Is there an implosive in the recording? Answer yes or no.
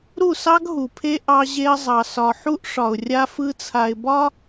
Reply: no